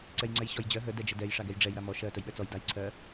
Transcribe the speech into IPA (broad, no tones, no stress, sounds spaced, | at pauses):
ǀ ɛ j ŋ͡ǀ ɛ j ɕ ɔ j d͡ʑ ɜ ɦ ə d ɛ d͡ʒ ə d ɛ j ʂ a ɡ ɛ j ɖ͡ʐ ɛ j ɾ a m ɔ ʃ ɜ t ə j ɓ ɛ t͡s ɔ j d a j ǀʰ ɜ